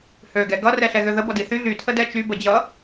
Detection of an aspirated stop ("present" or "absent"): present